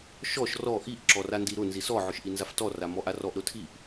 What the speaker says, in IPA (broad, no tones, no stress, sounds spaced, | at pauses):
ʃ ɔ ʃ r ɔ ʔ i ʔ ǁ ɔ r a n d i ɾ ʊ n z i s ɔ ʕ ʊ ʃ ʔ i n z a f t ɔ r a m ɔ ʔ a r ɔ ʔ ɾ ʊ tʰ i ʔ